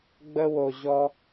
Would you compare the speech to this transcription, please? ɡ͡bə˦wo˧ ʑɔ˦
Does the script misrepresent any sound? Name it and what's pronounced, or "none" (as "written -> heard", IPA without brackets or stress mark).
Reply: none